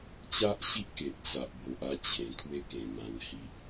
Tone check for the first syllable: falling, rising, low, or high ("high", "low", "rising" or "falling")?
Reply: high